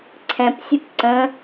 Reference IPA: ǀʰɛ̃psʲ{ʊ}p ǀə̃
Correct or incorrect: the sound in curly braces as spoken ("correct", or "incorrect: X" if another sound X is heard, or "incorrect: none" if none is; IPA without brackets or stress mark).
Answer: correct